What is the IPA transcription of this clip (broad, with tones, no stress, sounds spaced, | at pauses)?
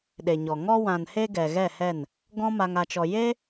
ɗ e˨ ɲ ɔ˨ ŋ ɔ˧ w ã˨ n h e˧ ɡ ɛ˨ ɣ ɛ˦˨ h ɛ˦˨ n | ɡ ɔ̃˦ m a˧ ŋ a˧ t͡ʃ ɔ˧ j e˦